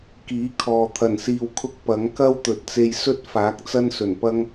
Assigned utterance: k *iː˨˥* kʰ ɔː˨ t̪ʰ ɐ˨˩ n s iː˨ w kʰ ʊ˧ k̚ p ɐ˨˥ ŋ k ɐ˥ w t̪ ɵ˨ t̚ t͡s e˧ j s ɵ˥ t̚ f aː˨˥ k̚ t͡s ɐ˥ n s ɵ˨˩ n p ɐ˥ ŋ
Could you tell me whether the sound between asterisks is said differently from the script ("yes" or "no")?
no